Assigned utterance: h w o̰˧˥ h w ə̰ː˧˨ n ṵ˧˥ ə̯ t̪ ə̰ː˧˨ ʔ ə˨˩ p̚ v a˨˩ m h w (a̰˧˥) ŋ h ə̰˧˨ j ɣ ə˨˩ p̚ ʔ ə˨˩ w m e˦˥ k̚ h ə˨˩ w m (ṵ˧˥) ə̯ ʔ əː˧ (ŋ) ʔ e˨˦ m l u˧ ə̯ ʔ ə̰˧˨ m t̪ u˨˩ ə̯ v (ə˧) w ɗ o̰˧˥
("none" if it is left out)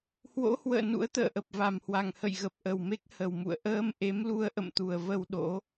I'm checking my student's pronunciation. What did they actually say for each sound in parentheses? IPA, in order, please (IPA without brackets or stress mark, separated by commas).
a˨˩, ṵ˧˨, m, ə˧